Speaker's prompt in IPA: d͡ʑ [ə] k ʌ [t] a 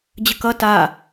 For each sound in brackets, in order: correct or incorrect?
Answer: correct, correct

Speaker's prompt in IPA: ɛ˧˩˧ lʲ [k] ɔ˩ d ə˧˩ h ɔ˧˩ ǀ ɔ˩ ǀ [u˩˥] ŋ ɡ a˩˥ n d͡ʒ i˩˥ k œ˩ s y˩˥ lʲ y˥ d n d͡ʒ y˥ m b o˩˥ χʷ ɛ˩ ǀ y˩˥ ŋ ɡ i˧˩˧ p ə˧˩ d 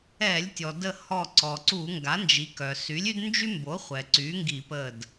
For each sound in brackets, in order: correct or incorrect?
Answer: incorrect: tʲ, incorrect: u˧˩˧

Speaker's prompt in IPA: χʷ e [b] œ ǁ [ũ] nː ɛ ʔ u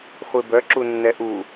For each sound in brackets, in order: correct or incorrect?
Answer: correct, incorrect: u

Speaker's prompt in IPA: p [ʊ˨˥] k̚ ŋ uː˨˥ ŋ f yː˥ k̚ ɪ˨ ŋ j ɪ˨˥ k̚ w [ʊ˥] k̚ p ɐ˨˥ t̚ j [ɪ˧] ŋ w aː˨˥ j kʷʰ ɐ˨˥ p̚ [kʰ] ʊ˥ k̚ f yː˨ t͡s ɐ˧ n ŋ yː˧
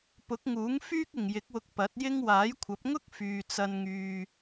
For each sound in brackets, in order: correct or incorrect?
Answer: correct, incorrect: ʊ˧, incorrect: ɪ˥, incorrect: ŋ

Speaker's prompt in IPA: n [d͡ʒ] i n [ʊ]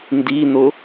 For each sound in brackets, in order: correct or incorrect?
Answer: incorrect: d, correct

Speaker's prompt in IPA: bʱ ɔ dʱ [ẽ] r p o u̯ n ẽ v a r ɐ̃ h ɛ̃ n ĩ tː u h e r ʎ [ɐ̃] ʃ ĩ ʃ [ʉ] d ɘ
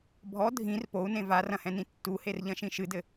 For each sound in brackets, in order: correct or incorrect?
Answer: incorrect: ĩ, correct, incorrect: ɨ

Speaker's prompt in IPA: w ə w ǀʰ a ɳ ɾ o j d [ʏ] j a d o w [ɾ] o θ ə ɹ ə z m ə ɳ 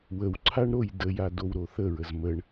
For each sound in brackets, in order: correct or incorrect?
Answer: incorrect: ə, correct

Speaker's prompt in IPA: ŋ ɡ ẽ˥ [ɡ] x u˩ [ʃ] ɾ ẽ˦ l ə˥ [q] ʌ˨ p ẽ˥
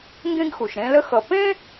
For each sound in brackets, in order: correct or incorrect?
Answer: correct, correct, incorrect: x

